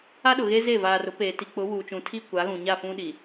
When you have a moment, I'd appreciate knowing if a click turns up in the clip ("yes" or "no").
no